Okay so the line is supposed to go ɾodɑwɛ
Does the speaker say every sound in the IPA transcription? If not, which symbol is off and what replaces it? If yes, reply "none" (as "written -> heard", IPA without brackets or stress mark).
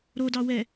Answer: none